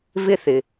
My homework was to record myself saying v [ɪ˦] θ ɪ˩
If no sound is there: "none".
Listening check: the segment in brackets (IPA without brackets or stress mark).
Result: ɪ˦